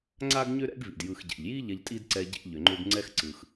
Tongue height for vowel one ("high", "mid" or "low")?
low